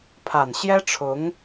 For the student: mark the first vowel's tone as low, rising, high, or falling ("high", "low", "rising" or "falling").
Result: low